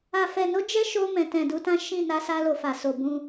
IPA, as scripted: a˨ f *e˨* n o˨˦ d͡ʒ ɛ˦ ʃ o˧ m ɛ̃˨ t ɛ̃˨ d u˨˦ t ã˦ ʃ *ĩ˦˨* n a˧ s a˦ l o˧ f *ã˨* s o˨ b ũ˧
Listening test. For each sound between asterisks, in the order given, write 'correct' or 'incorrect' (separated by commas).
incorrect, correct, incorrect